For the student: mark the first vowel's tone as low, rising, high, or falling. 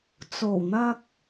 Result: low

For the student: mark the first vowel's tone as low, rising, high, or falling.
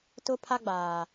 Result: high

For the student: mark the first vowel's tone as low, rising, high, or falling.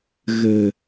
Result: low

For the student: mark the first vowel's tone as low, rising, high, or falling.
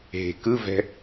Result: low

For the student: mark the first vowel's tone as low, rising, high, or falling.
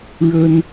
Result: high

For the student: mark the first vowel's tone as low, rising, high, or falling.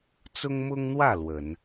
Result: high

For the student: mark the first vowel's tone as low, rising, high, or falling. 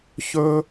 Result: high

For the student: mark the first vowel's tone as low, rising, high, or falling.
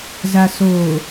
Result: low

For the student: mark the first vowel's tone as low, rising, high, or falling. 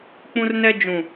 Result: high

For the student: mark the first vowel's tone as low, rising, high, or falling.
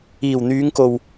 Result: low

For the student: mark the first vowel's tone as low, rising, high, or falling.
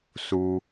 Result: high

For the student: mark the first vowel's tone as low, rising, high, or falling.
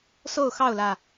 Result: falling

